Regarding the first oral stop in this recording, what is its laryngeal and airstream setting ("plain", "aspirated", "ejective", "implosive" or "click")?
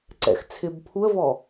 click